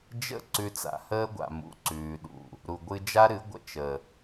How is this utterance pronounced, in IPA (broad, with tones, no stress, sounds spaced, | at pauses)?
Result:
d͡ʒ ə̰˦˨ ǀ ʉ˧ t͡s a̰˨ h əː˦ ɡʷ a̰˨ m ṵ˨ ǀ ʉː˨ ɗ ṵ˨ | ɾ u˨ ɡʷ ɨ˧ d͡ʒ a˦ ɾ ɨ˨˦ ɡʷ ə̰˧ t͡ʃ ə˨